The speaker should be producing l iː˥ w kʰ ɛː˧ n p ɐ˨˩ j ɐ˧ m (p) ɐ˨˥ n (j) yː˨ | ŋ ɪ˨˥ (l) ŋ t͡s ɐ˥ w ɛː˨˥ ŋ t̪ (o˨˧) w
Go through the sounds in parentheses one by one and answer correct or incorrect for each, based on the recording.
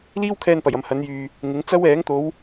incorrect, correct, incorrect, correct

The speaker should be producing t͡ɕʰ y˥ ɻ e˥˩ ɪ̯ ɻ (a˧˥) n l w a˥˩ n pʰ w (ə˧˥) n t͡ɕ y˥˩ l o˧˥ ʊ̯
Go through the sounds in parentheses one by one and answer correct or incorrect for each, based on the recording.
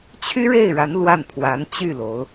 correct, incorrect

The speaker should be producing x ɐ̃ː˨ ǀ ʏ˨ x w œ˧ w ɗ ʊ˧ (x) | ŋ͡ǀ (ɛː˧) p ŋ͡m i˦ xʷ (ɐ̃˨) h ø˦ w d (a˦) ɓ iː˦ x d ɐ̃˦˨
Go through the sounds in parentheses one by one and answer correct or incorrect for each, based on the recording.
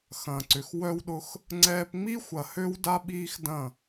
correct, correct, incorrect, correct

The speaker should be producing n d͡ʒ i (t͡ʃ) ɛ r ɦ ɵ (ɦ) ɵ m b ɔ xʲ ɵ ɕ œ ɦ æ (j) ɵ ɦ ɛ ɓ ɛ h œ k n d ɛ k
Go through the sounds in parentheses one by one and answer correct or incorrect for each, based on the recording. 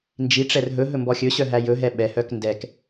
incorrect, correct, correct

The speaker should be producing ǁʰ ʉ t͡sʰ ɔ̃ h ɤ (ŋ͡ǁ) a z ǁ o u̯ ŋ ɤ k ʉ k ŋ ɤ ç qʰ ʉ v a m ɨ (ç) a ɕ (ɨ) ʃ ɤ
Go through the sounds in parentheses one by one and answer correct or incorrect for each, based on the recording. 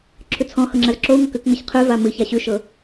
correct, correct, incorrect

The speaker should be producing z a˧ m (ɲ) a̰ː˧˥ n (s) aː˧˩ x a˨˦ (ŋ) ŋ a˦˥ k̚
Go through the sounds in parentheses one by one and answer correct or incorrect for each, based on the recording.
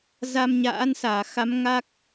correct, correct, incorrect

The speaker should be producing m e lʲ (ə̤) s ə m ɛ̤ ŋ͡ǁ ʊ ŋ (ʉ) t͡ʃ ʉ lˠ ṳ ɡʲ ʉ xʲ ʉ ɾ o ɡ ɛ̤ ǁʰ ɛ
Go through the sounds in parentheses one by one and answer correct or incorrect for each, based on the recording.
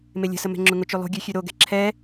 correct, incorrect

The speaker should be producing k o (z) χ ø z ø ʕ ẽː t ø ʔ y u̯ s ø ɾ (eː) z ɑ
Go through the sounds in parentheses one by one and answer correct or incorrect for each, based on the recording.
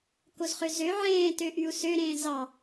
correct, incorrect

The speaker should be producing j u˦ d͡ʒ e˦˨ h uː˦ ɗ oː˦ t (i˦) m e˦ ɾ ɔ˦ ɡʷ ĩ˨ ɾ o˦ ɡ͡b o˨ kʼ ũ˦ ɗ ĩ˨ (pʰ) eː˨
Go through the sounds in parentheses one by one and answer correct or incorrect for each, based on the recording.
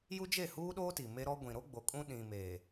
incorrect, incorrect

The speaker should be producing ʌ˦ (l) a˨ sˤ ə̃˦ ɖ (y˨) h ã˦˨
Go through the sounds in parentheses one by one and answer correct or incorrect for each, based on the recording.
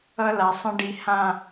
correct, incorrect

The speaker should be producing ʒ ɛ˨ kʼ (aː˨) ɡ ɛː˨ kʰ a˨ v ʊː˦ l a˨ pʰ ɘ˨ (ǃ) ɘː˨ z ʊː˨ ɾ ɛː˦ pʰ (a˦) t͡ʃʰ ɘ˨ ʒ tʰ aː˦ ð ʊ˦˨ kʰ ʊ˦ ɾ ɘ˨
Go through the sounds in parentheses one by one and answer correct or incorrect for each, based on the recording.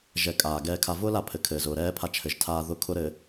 correct, incorrect, correct

